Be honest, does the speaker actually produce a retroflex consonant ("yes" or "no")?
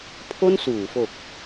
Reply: no